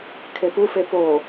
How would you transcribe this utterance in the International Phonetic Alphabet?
kʰ e p u f e p o

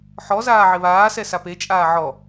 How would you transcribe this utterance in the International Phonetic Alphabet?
ħ ɔ z aː ʕ ɪ β aː s ɛ s a p e t͡ʃʼ aː ʕ ɔ

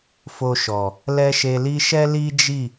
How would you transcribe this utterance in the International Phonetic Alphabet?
f o˧ ʃ ɔ˨ | l ɛ˧ ʃ e˨ l i˧ ʃ ɛ˦ l i˦ d͡ʒ i˦˨

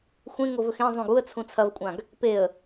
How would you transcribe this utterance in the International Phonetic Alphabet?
xʷ ẽ ŋ o v ɵ x ẽ zˤ ũ ɡ u ə̯ t͡sʰ ũ t͡sʰ ɐ v kʷʼ ã ɡ | p e ə̯

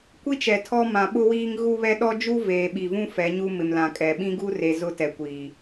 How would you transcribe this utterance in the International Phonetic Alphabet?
kʷ i˦ t͡ʃ ɛ˨ tʰ ɔ˦ m ã˨ ɓ ʊ˦ w iː˦ ŋ ɣ u˦ β ɛ˦ ɗ ɔ˦ d͡ʒ u˦ v eː˨ ɓ i˨ v ũ˦ f ɛ˨˦ ɲ u˦ m ɪ˨ m l ã˨ kʼ ɛ˨ ɓ ĩ˦ ɡ u˦ r e˨ z ʊ˦ t ɛ˨ kʷ iː˨

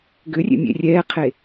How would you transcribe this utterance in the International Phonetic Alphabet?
ɡ ʏ rʲ ḛ mʲ ḛ rʲ ɛː qʰ e

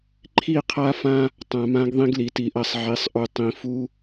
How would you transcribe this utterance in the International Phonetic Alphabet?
ǃʰ i˦˨ qʰ a˦ f ã˦ | tˤ ã˨ m ã˦ ɡ ðˤ ĩ˦ ɡ l i˨ t i˨ ʔ ɐ˦˨ sˤ ʕ i˨˦ sˤ ʔ u˨ tˤ ĩ˨ f u˦

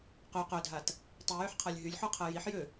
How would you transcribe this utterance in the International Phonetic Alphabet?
q y q ø dʱ a t | tˤ i j y ħ qʰ a lʲ ɦ y lʲ ħ u qʰ ɛ j i ħ j ø

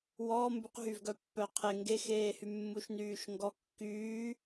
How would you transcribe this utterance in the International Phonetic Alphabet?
w ɔː m b y q ɦ y v ɡ œ pː œ qʰ e ŋ ɡ e x eː h y mː u ʃ n yː ʃ ŋ ɡ ɔ kː yː

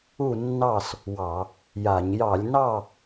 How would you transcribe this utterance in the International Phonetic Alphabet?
u˥˨ nː ɑ˥˨ s | w ɑ˧˩˧ | j a˧˩˧ ɲ j ɑ˧˩˧ lʲ n ɑ˥˨

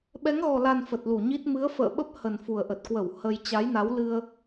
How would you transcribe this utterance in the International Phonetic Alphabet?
ɓ ɛ˨˦ ŋ ɣ ɔ˨˩ l a˨˩ n f ə˨˩ t̚ l u˧˩ ɲ i˦˥ t̚ m ɨ˨˦ ə̯ f ə̰ː˧˨ ɓ ə˦˥ p̚ h ə˨˩ n f u˨˩ ə̯ ʔ ə˨˩ t̚ k w ə˧˩ w h ə˧ j t͡ɕ a˨˦ j n a˨˦ w l ɨ˧ ə̯

